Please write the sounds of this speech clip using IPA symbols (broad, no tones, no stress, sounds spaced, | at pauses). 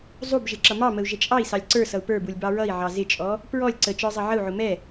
zˤ u b ʒ ɪ ǁ ʌ m ɑ m ə u̯ ʒ ə t͡ʃʼ ɑ i̯ s ɑ lʲ ǀ ə˞ s ʌ u̯ p ə˞ b u lʲ b ɑ ɹ ʌ i̯ ʕ ɑ z ɪ t͡ʃʼ ɔ | p ɹ ɔ lʲ ǀ ə t͡ʃ ə˞ zˤ ʌ ʕ ə u̯ ʕ ʊ m ɛ